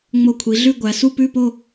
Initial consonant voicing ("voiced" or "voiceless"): voiced